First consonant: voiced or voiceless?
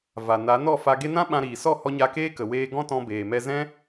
voiced